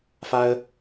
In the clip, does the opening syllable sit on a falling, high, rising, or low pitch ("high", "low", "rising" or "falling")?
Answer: high